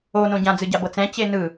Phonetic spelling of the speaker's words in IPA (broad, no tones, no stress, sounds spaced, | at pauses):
o n õ ɟ ã d͡z ɯ ɟ a b ɤ t͡s ɛ̃ t͡ɕ e n ɯ